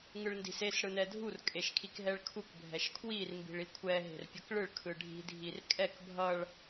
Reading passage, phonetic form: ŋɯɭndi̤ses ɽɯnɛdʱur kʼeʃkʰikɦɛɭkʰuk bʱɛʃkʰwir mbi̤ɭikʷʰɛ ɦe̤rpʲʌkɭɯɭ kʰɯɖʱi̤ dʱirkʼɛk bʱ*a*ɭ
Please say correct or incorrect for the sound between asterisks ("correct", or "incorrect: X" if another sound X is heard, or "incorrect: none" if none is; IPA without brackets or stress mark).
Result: incorrect: ʌ